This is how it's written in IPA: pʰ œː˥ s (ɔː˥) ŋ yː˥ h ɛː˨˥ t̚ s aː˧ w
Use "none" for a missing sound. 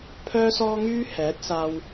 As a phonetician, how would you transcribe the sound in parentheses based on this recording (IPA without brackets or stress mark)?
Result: ɔː˥